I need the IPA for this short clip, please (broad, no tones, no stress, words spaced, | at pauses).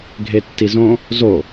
ɡʱetːizõ | zo